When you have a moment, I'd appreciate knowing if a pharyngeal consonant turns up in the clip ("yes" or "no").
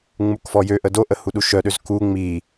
no